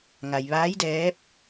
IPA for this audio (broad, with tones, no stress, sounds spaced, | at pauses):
ŋ a˩ j ʋ aː˧˥ j d ɛː˧˥ p̚